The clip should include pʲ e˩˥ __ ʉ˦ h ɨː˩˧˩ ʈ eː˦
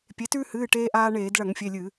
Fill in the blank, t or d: t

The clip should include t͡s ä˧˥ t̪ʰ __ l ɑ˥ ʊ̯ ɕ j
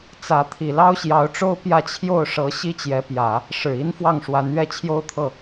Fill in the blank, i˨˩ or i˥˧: i˨˩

